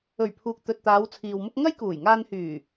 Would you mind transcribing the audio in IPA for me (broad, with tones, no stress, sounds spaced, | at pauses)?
ɵ˨˩ ɥ pʰ uː˨ k̚ t̪ ɵ˨ t̚ t̪ aː˨˧ w t͡sʰ iː˨ w m ʊ˥ k̚ ŋ ɐ˥ j k uː˨˩ j ŋ aː˧ n h yː˨˩